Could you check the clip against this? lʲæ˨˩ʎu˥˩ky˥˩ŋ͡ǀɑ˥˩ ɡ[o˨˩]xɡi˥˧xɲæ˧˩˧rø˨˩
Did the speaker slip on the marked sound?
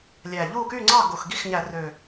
no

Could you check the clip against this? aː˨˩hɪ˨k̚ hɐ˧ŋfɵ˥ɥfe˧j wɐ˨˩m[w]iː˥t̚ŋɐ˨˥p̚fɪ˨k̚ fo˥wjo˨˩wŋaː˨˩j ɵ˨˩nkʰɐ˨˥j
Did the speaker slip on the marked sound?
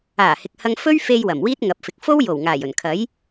no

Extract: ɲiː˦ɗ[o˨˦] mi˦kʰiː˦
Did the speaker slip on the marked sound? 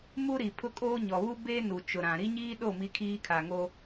yes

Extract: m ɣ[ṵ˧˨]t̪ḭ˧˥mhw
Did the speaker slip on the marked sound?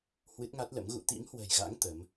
no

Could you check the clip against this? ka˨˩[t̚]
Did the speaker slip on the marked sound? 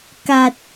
no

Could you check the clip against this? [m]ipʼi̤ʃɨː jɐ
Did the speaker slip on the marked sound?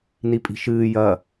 yes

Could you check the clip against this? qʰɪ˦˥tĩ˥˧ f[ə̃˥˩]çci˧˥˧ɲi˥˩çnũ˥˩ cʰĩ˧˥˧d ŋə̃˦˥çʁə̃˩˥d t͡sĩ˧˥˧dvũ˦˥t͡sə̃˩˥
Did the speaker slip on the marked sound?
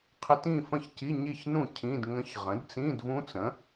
no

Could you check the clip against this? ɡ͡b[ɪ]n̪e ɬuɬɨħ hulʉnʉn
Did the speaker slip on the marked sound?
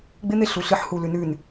no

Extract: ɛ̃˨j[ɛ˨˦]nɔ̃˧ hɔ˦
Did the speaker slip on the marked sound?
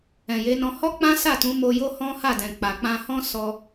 yes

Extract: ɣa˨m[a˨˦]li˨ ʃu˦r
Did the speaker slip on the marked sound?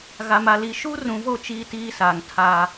yes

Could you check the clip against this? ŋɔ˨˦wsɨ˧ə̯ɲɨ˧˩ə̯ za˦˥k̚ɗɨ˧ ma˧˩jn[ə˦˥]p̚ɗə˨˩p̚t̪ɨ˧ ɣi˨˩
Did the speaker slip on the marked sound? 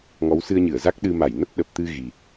no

